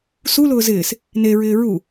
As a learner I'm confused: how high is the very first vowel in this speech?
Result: high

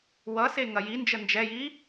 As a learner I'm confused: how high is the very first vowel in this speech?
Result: mid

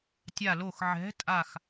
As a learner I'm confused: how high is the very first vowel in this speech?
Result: low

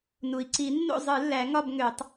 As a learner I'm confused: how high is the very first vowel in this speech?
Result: high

